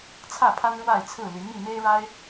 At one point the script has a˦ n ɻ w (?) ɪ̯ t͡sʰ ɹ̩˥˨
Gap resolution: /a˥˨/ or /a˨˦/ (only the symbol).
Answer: a˥˨